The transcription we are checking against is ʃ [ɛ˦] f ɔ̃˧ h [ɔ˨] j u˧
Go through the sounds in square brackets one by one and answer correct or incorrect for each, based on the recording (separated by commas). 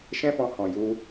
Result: incorrect, incorrect